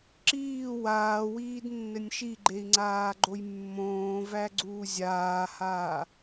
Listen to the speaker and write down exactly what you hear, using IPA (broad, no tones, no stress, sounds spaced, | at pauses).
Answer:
ǁ iː w aː w iː d nː ɘ nʲ ʃ i ɡ͡ǃ e i̯ ŋ͡ǀ aː ɡ͡ǃ o j mː õː v æ ɡ͡ǀ uː zʲ aː h aː